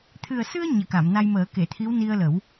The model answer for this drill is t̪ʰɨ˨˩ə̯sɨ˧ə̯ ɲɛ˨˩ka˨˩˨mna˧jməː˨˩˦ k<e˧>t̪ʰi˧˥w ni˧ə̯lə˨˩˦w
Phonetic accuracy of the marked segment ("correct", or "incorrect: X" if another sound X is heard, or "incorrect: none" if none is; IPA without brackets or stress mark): incorrect: e˨˩˨